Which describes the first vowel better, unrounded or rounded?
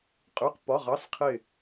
rounded